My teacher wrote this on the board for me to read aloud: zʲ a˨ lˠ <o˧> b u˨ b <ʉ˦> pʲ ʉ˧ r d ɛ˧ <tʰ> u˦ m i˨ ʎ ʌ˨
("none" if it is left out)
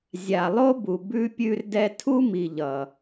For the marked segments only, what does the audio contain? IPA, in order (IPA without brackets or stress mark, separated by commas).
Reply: o˦, ʉ˧, tʰ